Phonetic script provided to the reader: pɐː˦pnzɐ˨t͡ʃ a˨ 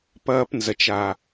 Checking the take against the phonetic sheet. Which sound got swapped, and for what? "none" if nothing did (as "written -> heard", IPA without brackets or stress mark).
none